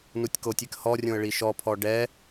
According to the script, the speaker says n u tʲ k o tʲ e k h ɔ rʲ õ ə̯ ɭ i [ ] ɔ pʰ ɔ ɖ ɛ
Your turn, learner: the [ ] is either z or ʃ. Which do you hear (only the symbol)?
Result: ʃ